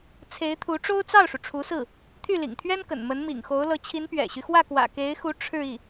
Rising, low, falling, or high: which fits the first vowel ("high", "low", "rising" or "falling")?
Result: rising